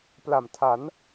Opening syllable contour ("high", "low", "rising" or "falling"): low